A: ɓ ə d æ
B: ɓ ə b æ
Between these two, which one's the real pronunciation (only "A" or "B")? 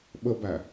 B